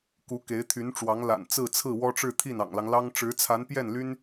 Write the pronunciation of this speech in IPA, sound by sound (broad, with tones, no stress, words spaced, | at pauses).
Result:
ku˧˥ke˧˥ɪ̯t̪ʰy˧˥nʈ͡ʂwɑ˧˥ŋ la̰˨˩nt͡sɹ̩˥˧t͡sʰɹ̩˥˩ wɔ˥ʈ͡ʂɻ̩˥˧t̪ʰi˥˩n ɑ̰˨˩ŋlɑ˦ŋlɑ˥ŋ ʈ͡ʂɻ̩˧˥t͡sʰa˧˥npjɛ˥˩nly˥n